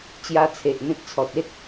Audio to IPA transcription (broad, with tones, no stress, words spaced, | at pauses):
t͡ɕja˧t͡sʰe˨ʔn̪ẽ˦t̚t͡sʰɔ˨t̚ e˦t̚